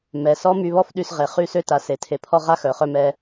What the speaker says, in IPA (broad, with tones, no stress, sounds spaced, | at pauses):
m ɛ˨ s ɔ˦ m y˧ β ɔ˦ f ɗ y˧ s ʁ e˨ χ y˦˨ s ø˦ t a˨ s e˨ tʰ e˨ pʰ ɔ˦ ʁ a˦ x œ˨ χ œ˧ m ɛ˧